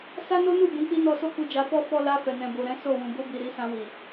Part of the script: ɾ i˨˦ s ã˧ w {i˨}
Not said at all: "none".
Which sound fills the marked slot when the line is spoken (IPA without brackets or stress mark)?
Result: i˨